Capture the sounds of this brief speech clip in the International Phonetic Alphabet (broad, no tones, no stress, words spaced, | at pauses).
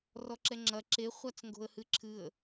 rɔǁɛŋ͡ǁɐ ǁe χʷat͡sŋɡo̤ə̯hɨǁʰɨə̯